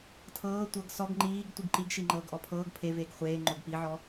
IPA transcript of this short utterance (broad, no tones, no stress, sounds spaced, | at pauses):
tʰ ɤː tʷ ɤ ɡ s ɔ ɡ ŋ͡ǃ iː ɡ tʷ i ɡ ǃ i ɡ ʃ i ŋ͡ǃ ɤː ɡ ʔ ɔ pʰ ɤː ɡ pʰ e v eː ɡ χʷ eː ŋ͡ǃ o ɡ p i ʕ ɔ